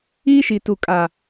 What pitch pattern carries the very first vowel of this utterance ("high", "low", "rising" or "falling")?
high